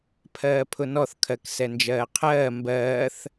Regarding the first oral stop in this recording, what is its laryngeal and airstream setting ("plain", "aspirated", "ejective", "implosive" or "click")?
aspirated